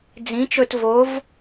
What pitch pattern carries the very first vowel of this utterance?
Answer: rising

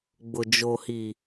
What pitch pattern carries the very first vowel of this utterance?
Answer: low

